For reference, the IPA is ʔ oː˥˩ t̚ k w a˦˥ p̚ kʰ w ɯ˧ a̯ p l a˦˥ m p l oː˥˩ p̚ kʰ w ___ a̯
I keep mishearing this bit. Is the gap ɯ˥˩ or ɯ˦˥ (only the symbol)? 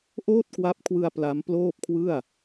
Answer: ɯ˥˩